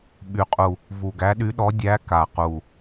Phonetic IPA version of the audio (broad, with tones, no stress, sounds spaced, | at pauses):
ɓ y˨˩ qʼ u˨˩ | v u˨˩ ɡ æ˨˥ ɗ y˨˥ ɗ ɔ˨˥ dʲ æ˨˥ k a˨˩ q u˨˩